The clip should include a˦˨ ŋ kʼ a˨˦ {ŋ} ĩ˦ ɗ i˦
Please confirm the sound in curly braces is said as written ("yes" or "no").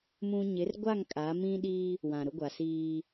no